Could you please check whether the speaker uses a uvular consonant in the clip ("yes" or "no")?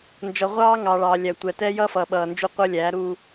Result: yes